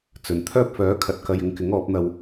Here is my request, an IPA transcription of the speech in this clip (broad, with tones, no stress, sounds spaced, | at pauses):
t͡s ɵ˨ n t̪ʰ œː˥ p̚ f œː˨˥ kʰ ɐ˨ t̚ k ɐ˧ j ɪ˧ ŋ k ɪ˨˥ ŋ ɔː˨˥ p̚ n̪ ɐ˧ w